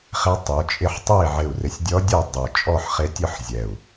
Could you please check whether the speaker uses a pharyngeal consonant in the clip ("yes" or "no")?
yes